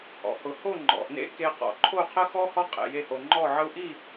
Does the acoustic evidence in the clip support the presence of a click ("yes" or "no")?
yes